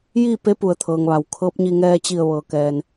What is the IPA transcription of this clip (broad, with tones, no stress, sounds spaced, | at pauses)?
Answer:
j iː˥˨ p e˧˥ p u˩ ə̯ t̪ʰ ɤː˩ ŋ ʋ a˩ w kʰ ɤː˧˥ p̚ ɲ i˧ ŋ ɛː˧ t͡ɕ i˧˩ ə̯ ʋ ɤː˩ k ɛː˩ n